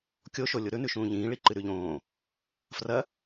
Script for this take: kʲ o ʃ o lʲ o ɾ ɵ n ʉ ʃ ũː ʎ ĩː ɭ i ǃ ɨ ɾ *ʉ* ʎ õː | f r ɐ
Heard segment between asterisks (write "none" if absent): ʉ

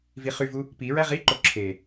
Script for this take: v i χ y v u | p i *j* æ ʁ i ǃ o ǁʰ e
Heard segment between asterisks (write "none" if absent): ɹ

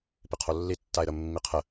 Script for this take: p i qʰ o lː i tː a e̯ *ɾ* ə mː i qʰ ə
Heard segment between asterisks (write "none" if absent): ɾ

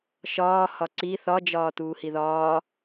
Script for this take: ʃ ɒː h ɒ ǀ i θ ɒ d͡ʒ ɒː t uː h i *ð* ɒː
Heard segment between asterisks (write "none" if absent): ð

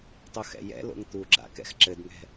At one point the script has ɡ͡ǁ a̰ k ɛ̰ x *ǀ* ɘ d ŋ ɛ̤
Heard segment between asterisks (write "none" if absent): ǁ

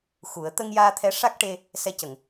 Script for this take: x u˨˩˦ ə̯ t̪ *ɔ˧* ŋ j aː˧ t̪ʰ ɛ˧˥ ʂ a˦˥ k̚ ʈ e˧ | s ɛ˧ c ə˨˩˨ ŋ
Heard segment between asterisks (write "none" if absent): ə˧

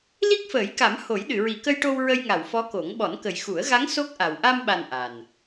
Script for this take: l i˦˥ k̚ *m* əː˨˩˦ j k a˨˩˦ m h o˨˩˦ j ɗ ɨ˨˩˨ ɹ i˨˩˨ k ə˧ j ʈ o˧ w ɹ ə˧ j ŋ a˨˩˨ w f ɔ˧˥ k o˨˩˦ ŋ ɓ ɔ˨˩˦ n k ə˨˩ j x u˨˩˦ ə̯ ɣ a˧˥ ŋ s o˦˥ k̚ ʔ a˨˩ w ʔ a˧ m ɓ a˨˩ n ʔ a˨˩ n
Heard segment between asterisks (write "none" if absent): f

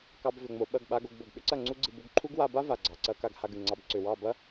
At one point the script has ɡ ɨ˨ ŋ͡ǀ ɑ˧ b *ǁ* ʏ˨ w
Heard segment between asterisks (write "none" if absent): ǀ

